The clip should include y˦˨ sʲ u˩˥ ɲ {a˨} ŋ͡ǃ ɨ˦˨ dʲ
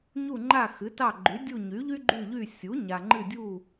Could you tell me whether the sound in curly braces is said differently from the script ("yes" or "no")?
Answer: no